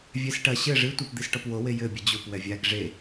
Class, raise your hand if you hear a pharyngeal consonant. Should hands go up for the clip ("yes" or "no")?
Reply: no